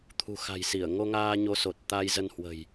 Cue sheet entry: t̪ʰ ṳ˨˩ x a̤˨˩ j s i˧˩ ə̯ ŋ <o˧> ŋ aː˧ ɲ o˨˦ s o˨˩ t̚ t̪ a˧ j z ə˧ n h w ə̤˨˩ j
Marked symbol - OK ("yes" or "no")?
yes